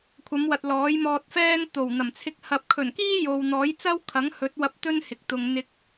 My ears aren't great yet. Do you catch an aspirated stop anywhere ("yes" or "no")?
yes